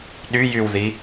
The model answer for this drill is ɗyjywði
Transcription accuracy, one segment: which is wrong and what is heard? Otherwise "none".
none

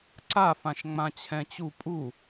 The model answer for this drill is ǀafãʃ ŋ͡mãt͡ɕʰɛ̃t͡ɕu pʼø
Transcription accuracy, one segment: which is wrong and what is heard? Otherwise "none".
ø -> u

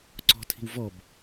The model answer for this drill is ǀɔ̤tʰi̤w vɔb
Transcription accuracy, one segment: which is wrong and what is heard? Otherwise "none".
none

